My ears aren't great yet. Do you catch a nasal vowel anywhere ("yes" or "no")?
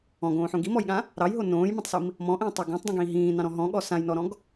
yes